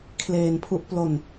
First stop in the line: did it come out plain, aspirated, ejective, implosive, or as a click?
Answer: aspirated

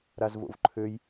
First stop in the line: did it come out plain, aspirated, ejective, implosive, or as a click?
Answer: click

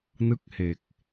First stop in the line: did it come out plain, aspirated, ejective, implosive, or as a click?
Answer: plain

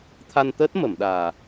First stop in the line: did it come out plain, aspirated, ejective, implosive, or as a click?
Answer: aspirated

